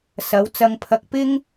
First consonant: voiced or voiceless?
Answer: voiceless